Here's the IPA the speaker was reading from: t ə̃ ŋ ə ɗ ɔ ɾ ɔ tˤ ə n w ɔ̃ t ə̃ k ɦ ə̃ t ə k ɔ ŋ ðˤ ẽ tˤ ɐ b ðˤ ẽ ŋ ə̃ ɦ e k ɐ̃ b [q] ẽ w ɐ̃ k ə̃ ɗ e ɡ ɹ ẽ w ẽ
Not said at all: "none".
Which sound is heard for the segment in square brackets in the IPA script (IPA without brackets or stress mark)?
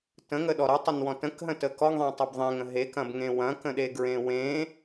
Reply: ŋ